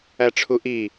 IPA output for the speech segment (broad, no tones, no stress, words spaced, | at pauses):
æʈ͡ʂʰuʔi